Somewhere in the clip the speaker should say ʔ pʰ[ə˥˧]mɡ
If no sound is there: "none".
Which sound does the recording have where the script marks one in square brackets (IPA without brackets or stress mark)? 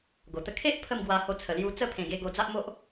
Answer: ə˥˧